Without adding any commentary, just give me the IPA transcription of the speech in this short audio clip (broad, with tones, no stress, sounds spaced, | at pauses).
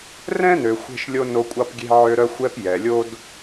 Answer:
r ɛ̃˥ n ø˨ xʷ e̤˦ ʃ lʲ o˦ n o˦ kʷʼ ɑ˥ p ɡʲ e̤˥ ʕ ø˦ ɾ œ˥ xʷ ɛ˦ p j ɛ˩ lʲ o˥ d